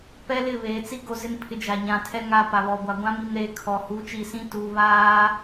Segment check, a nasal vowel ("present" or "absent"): present